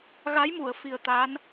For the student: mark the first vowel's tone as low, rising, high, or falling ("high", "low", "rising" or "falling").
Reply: rising